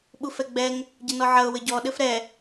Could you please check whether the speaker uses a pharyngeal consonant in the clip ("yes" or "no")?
yes